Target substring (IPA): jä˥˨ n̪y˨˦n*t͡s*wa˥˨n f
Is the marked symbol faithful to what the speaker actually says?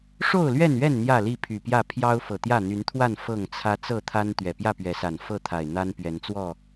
no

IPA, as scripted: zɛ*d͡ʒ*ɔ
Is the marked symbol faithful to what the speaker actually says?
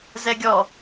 no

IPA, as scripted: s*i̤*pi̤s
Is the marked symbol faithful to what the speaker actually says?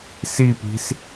no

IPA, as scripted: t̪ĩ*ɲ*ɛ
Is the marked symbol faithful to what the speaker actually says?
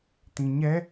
yes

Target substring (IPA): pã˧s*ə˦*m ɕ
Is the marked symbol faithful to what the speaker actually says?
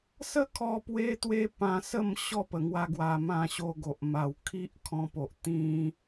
no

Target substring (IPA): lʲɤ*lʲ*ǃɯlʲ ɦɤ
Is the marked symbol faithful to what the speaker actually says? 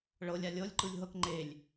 yes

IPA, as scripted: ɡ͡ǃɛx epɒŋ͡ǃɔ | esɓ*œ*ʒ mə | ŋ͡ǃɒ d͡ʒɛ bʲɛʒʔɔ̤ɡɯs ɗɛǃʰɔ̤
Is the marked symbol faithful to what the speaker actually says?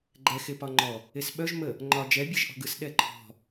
yes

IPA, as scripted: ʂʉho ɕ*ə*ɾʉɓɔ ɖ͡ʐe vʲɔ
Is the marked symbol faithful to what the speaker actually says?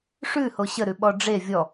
yes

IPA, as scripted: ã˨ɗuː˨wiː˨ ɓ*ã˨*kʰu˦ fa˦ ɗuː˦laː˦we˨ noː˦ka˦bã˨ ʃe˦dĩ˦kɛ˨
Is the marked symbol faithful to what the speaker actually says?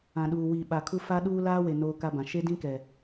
no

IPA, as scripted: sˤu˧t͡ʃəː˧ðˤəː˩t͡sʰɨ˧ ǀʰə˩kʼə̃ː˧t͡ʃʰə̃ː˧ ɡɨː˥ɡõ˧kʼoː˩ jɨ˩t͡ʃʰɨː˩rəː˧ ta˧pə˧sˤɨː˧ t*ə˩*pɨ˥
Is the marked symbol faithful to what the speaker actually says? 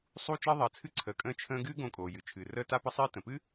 no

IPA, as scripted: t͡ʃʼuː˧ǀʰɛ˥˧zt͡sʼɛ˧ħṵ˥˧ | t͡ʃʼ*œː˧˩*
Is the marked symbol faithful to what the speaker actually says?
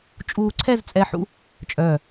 yes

